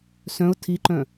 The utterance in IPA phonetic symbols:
sœ̃ʊ̯ tʰiǃœ̃

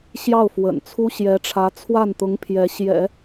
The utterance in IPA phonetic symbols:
ɕjɑ˥˩ʊ̯fwə̰˨˩n t͡sʰu˥ ɕjɛ˧˥ʈ͡ʂʰä˧˥ t͡sʰwa˥˩nt̪ʊ˧˥ŋ pʰjɛ˧˥ ɕjɛ̰˨˩˦

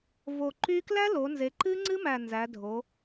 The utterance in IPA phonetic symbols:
vo˨˩ǃy˦˥ klæ˦˥lo˩˧ nze˩˧ǃɨ˦˥ ŋ͡ǀɨ˦˥mæ˨˩ nzæ˩˧dʱo˩˧

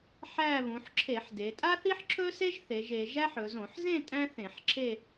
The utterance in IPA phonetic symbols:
ħæ˥˧ βũ˩˧ħǁʰe˧˩˧ħde˩˧ tʼa˥θi˥ħǁʰɵ˥se˥ʒ θe˩˧ʒ e˩˧ʒæ˥ħɵ˩˧ zõ˧˩˧ħzẽ˥˧ tʼæ̃˥θẽ˧˩˧ħǁʰe˥˧

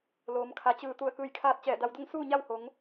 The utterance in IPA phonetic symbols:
loː˩˧mkʰa˩˧t͡ɕɯː˧˩ t̪u˧˩ə̯kɯː˧˩jkʰaː˧t̚ t͡ɕɛː˧˩da˧wdo˥˨ŋ suː˥˨ɲa˥˨who˩˧ŋ

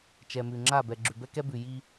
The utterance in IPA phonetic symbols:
t͡ʃɛ˨mʉ˨ŋ͡ǁa˦˨ bɛ˨ ɡ͡ǁʉ˨bɛ˦kɛ˦ bʉ˨ ji˦

